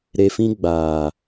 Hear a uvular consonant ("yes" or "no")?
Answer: no